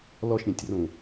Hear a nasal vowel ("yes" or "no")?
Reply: yes